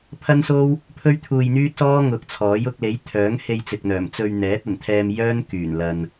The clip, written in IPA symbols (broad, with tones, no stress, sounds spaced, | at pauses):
pʰ ɐ˥ n s o˥ w | pʰ ɵ˥ ɥ t̪ʰ uː˧ j n̪ yː˥ t̚ s ɔː˥ ŋ ʊ˨ k̚ t͡sʰ ɔː˨˥ j ʊ˧ k̚ l e˨˥ j t̪ʰ œː˨˥ ŋ h e˧ j t͡s ɪ˨ k̚ n̪ œː˨˩ m t͡s ɵ˧ ɥ n̪ ɛː˨˥ t̚ ɐ˨˩ n t̪ʰ ɛː˧ m j œː˥ n k yː˨˩ n l ɐ˨ n